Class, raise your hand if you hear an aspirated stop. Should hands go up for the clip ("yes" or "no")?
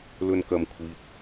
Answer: yes